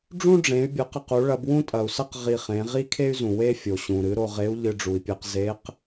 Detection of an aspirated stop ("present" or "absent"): present